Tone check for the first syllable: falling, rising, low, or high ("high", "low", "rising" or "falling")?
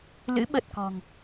rising